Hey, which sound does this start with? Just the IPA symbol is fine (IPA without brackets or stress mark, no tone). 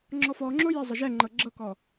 ŋ͡ǁ